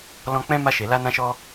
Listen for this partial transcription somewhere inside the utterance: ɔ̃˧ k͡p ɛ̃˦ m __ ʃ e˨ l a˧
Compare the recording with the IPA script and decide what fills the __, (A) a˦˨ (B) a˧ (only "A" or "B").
B